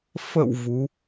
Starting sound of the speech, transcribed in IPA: f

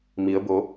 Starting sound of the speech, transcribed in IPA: m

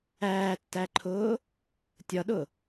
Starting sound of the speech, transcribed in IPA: æː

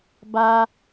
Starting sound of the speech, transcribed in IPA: b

